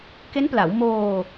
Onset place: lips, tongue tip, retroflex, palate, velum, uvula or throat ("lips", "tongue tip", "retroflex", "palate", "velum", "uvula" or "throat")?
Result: velum